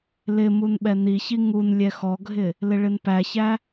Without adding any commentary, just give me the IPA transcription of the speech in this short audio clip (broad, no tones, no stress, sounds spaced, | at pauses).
l ɪ m u n ɓ ɛ n i ç i ŋ u n lʲ ɛ x ɔ ɡʱ ɪ | l ɪ ɭ ɪ n p æ ç æ